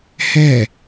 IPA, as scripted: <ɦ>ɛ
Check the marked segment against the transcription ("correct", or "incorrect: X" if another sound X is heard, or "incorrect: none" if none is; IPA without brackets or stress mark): incorrect: h